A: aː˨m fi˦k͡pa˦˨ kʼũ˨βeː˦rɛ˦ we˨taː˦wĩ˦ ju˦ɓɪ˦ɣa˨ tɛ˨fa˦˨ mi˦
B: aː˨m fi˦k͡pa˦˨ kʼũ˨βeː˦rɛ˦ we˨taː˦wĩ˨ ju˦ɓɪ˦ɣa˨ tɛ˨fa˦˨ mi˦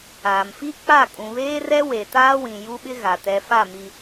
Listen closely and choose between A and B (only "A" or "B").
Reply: B